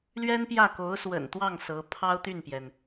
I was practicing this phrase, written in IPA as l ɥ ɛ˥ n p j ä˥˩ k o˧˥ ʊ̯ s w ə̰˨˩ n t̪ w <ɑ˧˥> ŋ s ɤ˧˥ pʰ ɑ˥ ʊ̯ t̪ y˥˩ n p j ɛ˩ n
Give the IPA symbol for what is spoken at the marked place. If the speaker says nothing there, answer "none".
ɑ˥˩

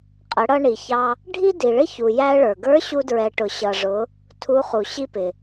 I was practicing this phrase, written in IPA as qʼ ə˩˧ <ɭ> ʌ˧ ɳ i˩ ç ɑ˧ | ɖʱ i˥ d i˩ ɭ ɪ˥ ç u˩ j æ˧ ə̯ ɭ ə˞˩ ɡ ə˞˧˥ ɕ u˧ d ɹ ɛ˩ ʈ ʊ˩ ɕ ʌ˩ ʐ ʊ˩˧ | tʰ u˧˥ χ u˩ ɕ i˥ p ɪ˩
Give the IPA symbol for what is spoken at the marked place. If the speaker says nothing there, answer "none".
ɽ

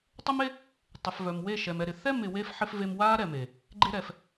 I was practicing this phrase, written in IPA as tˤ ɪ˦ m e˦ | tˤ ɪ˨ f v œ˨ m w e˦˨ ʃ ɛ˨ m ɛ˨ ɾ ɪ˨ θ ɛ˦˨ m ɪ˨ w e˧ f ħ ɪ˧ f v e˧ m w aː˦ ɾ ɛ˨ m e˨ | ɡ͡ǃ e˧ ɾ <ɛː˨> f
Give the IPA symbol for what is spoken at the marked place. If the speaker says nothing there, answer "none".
ɛː˨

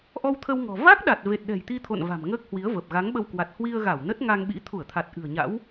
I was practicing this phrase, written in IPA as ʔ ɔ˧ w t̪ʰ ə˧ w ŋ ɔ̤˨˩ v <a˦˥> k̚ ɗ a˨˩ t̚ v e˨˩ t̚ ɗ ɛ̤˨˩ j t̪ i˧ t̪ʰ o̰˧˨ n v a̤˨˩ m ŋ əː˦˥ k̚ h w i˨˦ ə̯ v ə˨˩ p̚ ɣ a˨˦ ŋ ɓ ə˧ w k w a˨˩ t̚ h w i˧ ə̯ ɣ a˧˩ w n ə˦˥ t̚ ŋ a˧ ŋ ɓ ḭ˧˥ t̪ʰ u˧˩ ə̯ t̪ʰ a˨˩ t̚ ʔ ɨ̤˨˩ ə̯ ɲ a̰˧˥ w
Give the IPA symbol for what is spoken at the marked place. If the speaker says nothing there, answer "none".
a˦˥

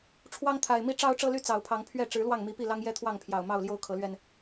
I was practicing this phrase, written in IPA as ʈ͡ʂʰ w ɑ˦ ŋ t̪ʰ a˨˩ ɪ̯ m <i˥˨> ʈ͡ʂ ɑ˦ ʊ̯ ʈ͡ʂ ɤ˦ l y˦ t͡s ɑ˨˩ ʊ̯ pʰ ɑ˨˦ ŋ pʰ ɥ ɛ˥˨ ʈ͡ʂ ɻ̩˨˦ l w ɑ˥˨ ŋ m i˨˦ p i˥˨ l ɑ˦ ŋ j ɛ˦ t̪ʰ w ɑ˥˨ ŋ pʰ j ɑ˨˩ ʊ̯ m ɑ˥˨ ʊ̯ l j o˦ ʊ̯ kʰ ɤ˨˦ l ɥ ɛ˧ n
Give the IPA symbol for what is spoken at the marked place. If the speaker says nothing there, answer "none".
i˦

